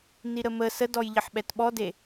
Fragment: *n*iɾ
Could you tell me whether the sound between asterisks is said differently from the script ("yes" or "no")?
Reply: no